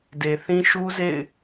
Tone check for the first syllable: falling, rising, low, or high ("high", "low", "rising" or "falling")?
low